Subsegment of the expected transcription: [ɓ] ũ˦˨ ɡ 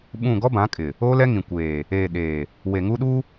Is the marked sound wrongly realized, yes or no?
no